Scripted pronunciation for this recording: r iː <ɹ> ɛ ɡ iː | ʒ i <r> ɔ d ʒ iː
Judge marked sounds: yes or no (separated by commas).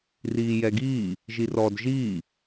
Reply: no, yes